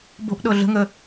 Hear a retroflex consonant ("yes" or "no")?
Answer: no